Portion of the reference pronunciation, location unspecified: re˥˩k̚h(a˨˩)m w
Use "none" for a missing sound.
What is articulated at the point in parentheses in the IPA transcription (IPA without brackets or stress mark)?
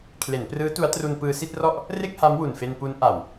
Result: a˦˥